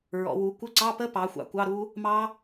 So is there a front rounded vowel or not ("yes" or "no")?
no